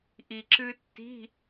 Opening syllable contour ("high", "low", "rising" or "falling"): low